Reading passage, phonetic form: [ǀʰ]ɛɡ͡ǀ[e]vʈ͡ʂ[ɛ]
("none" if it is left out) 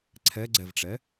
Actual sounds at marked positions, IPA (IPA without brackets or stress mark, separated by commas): ǀʰ, ɛ, ɛ